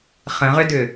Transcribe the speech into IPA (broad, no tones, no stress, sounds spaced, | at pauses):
χ ə̃ ʁ ʏ d ʏ